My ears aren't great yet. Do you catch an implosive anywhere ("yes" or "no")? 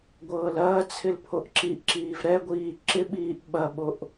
yes